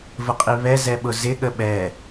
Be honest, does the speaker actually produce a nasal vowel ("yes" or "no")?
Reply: no